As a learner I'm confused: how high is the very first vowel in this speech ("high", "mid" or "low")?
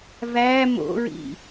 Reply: low